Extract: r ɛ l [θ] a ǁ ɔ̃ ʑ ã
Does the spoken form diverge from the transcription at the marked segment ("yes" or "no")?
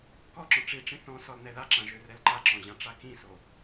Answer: yes